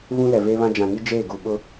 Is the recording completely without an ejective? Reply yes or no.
yes